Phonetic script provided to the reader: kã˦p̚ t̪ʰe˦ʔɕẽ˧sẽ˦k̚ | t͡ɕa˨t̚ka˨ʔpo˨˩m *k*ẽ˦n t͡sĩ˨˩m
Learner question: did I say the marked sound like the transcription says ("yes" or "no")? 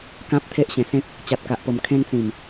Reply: no